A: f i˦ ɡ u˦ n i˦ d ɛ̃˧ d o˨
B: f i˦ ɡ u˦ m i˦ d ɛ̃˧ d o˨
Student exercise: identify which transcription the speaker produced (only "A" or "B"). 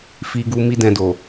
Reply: B